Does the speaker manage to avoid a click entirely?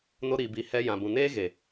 yes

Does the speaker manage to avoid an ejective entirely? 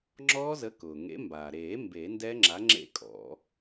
no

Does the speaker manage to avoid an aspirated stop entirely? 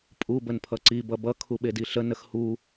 no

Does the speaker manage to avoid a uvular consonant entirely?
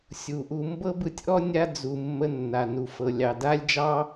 yes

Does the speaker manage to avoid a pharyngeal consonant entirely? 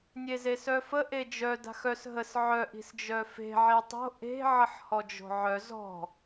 no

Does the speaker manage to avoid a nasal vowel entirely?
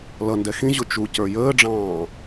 no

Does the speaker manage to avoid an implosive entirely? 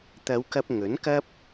yes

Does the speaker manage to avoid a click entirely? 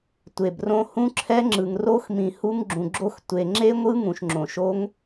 no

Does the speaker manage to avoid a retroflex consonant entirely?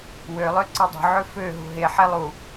yes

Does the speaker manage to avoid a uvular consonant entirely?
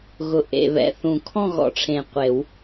no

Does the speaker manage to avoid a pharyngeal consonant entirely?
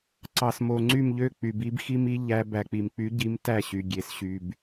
yes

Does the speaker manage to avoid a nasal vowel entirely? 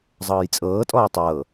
yes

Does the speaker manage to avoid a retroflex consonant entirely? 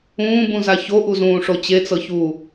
no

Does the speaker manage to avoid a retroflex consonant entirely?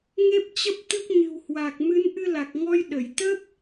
yes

